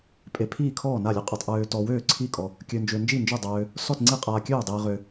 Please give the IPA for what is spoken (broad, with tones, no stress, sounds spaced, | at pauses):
pʼ e˧ pʰ iː˥˨ kʰ ɔː˥˨ n a˥˨ lʲ ø˧ qʼ ə˧ tˤ ʔ øː˧ t ɔ˧ w øː˥˨ ǀʰ i˥˨ kʼ ɔ˧ | kʲ ø˧ n d͡ʒ ø˧ n d͡ʒ i˥˨ n d͡ʒ ø˥˨ dˤ øː˧ | s ɔ˥˨ t ŋ͡ǀ i˥˨ qʼ aː˧ kʲ øː˥˨ dˤ iː˧ ʁ ø˧